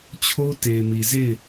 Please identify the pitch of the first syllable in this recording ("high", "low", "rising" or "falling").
high